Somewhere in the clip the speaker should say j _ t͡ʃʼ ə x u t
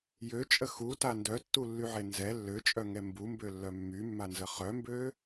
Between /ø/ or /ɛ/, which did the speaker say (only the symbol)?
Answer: ø